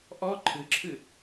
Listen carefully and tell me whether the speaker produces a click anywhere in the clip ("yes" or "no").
yes